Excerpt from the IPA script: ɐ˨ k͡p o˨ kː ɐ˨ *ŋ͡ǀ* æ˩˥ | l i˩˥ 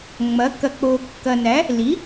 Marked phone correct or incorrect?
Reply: incorrect